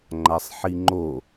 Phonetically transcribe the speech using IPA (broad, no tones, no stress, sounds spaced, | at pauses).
ŋ͡ǃ a sˤ ħ i ŋ͡ǃ o